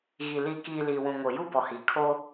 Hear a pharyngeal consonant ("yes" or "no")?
no